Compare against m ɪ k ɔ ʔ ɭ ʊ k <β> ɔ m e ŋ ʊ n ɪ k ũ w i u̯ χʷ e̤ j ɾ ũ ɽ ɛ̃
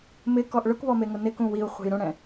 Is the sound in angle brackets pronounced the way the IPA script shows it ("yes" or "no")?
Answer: yes